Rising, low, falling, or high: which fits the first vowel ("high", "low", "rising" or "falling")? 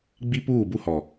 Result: high